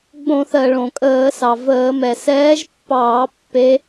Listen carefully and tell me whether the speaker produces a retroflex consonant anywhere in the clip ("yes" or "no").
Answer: yes